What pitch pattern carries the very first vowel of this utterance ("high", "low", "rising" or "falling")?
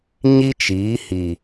high